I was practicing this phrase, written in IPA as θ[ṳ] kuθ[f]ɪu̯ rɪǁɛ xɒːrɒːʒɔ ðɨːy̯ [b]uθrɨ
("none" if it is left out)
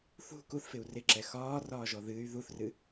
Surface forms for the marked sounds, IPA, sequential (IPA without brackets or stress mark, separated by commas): ṳ, f, ð